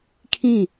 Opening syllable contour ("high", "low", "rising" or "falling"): falling